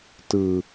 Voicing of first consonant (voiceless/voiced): voiceless